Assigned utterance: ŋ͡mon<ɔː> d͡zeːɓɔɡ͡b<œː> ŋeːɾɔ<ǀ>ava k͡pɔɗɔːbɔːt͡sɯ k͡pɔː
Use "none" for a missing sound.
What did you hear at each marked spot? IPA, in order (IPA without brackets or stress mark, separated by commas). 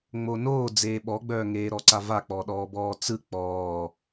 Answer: oː, œː, ǀ